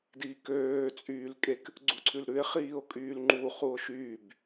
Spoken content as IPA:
d iː k øː t͡sʼ yː l kʼ e k | ɡ͡ǀ u ǀʰ ʉ l ɾ ʉ e̯ χ iː o̯ kʼ yː l ŋ͡ǃ u χ u o̯ ʃ yː b

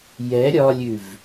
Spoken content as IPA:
j ɛ ɾʲ ɒ lʲ ʉ v

